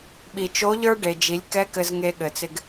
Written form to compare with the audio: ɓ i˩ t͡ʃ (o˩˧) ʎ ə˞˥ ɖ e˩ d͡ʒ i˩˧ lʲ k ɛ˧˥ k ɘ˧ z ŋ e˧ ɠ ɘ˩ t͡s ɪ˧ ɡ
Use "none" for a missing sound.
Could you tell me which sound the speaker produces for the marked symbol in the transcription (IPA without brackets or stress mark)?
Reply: o˧˥